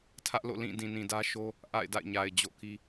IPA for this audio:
tʰ ä˦ ʔ l o̰˦˨ l ĩ˦˨ d ĩ˨ n ĩ˨ d ä˦ ʃ o˦ | ʔ a̰˦˨ ɪ̯ d a̰˦˨ ɪ̯ ɲ a˨ ɪ̯ d͡ʑ o̰˦˨ k i˦

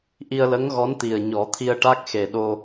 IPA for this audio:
ʔ i˧ ə̯ l ə˧˥ ŋ ɣ ɔ˧˥ n t̪ i˨˩ ə̯ ɲ ɔ˨˩˦ t̪ʰ i˧ ə̯ ʈ a˦˥ k̚ x e˨˩ ɗ o˧

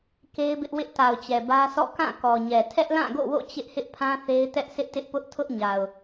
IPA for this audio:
k e˦ ɪ̯ b ɪ˦ ʔ w ɪ˦ ʔ t a˨ ʊ̯ t͡ɕ ɛ˨ b ä˦ sʰ ɔ̰˦˨ k ã˦˨ k ɔ˨ ɲ ɛ˨ tʰ ɛ˦ ʔ l ã˦˨ ɡ o̰˦˨ w o̰˦˨ t͡ɕ ɪ˦ ʔ h ɪ˦ ʔ pʰ ã˦ θ e˦ ɪ̯ t ɛ˦ ʔ sʰ ɪ˦ ʔ t ɪ˦ ʔ p ʊ˦ ʔ tʰ ʊ˦ ʔ ɲ a˨ ʊ̯

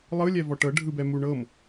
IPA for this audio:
lˠ ɯ lʲ ɛ v ɔ ʈ ɤ ɖʱ ɯ b ɛ m u ɳ ɤ m

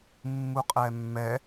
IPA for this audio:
mː u qʼ ɛ mː ɛ

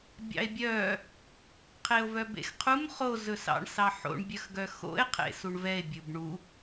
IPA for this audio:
bʲ ɑ̰ e̯ bʲ œ | qʰ e o̯ v œ b ḛ x qʰ u m χ o z ɵ s ɑ̰ ɳ s ɑ ħ o̰ ɳ bʲ œ x ɡ œ x o̰ e̯ qʰ ḛ s u ɳ v ɛ e̯ bʲ ɵ b ɳ u

